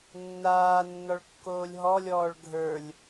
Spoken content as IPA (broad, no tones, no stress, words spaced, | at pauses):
nːaː nːɔɭkːoːlʲɦɔlʲɔːɭ ɡʱə˞lʲ